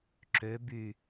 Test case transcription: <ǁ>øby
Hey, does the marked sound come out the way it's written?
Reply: yes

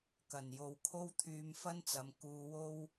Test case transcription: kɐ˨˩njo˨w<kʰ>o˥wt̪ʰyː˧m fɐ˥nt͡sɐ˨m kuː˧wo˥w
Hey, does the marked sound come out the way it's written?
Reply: yes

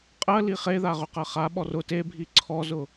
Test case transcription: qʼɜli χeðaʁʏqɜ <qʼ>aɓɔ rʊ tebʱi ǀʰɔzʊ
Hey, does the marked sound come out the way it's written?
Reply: no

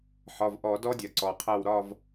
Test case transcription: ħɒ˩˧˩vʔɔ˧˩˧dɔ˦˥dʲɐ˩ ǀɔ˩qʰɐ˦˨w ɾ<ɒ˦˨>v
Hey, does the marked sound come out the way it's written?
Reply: yes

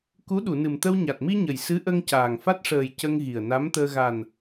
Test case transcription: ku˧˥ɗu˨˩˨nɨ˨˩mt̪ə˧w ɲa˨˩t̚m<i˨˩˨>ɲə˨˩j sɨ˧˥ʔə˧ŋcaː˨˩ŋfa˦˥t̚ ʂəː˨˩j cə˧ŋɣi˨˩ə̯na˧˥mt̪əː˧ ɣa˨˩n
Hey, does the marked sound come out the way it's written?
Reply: no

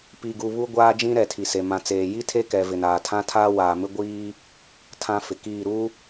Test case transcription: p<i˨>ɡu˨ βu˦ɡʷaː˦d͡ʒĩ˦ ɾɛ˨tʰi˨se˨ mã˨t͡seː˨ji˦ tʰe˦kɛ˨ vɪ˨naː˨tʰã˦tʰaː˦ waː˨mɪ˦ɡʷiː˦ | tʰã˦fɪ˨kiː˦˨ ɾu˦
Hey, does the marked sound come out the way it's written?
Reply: yes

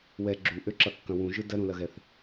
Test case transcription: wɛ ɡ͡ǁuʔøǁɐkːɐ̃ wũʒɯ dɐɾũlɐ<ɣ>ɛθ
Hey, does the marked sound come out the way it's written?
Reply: yes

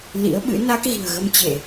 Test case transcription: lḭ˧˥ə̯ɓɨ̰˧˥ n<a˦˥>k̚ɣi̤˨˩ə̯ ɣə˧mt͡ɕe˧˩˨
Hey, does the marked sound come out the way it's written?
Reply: yes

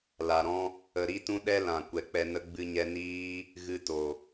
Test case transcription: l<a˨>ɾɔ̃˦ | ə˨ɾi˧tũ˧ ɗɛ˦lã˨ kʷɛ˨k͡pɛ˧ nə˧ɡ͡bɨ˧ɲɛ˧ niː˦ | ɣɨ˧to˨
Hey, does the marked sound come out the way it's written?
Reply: yes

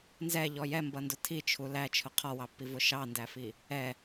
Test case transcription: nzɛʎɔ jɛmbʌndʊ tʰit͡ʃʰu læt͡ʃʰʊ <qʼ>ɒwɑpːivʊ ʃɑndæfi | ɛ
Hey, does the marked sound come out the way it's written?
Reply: no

